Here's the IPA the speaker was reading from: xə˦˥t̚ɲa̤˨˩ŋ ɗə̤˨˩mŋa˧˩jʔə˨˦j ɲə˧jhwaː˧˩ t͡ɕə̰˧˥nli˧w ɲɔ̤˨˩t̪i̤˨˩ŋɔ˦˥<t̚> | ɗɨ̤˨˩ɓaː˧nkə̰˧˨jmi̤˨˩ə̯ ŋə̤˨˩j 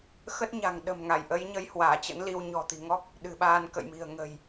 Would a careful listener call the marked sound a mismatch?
yes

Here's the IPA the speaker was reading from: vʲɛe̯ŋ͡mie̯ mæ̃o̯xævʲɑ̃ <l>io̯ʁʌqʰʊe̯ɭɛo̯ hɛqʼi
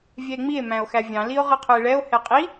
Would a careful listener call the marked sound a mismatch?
no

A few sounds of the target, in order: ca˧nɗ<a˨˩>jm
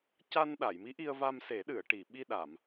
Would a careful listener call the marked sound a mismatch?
yes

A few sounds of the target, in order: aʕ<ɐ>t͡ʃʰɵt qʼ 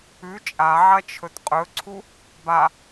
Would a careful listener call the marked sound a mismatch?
no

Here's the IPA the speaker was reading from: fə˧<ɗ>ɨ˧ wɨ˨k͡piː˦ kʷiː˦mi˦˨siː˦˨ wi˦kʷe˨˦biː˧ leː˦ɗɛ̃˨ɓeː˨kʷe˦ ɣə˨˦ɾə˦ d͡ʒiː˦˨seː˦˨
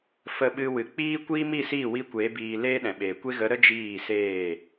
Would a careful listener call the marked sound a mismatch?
yes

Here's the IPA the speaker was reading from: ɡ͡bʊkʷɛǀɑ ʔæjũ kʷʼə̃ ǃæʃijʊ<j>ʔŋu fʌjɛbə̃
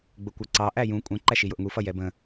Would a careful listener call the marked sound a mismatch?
yes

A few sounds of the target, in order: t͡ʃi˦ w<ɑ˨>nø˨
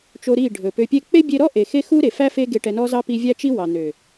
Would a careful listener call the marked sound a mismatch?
no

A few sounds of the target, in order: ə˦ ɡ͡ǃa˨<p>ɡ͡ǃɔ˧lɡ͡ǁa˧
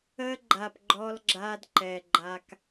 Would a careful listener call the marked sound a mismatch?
no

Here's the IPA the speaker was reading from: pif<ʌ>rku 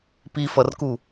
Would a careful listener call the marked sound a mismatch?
no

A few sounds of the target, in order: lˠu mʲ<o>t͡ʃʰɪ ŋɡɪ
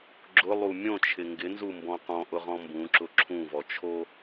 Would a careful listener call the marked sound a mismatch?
yes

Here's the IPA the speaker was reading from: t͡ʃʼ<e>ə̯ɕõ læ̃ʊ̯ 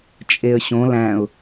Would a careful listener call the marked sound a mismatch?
no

